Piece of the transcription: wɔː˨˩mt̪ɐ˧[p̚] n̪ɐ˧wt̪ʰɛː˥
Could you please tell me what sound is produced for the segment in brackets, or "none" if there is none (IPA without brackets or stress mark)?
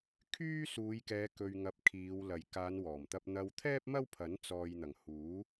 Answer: p̚